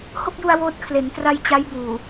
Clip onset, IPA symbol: h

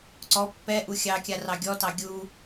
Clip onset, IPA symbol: ǀ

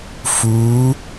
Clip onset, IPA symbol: f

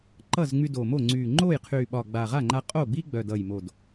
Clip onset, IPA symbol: ǃ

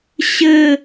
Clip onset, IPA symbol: ɕ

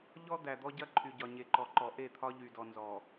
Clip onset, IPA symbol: ʎ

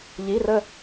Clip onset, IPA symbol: ʎ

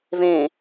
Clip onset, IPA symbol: v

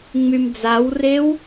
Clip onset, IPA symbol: ŋ͡m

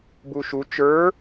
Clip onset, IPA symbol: b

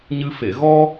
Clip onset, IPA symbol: ɲ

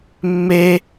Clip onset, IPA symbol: mː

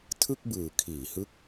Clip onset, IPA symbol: tʰ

